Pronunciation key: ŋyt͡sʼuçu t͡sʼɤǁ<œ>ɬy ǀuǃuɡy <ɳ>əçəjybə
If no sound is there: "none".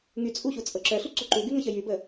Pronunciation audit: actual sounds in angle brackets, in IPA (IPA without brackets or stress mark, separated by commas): œ, ŋ